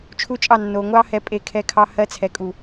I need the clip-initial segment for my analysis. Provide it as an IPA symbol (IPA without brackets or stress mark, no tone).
t͡ʃʰ